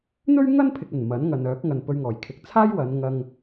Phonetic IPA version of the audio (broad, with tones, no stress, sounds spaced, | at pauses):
n̪ ɵ˥ ɥ ŋ ɐ˥ n pʰ ɪ˨ k̚ ɐ˨˩ n m ɐ˨˥ n ŋ ɐ˨ n œː˨˥ k̚ ŋ ɐ˨ n p ɵ˧ ɥ ŋ ɔː˨˩ j kʰ ɪ˨˥ k̚ t͡sʰ aː˥ j w ɐ˨˧ n ŋ ɐ˧ ŋ